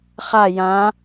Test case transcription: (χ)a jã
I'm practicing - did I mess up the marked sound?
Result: no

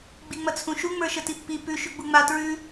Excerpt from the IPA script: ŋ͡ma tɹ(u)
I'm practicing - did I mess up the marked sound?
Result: yes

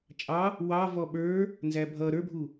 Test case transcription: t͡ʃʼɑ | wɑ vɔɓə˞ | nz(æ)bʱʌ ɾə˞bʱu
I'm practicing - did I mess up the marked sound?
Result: no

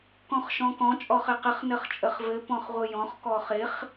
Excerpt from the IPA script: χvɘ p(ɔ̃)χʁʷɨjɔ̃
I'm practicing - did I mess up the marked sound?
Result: no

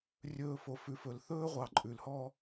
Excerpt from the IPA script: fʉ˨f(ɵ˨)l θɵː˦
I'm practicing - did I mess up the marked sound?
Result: no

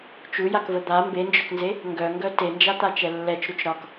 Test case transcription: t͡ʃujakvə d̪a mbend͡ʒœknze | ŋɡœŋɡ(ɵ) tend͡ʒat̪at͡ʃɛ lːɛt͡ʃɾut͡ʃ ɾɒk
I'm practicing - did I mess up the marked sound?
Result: yes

